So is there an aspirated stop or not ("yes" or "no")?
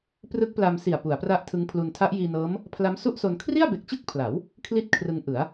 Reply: yes